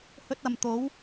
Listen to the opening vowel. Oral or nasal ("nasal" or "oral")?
oral